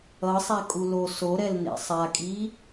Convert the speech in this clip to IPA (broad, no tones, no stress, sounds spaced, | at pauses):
ʌ sˤ a kʼ u l o s o ɾ ɛ l n ḛ sˤ a kʼ i